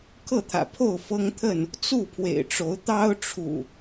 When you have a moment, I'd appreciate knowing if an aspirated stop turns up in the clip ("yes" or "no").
yes